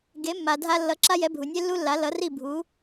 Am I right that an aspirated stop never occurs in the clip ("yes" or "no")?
yes